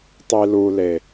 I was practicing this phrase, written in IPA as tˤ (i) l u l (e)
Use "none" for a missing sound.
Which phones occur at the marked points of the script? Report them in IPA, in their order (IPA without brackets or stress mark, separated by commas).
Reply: i, e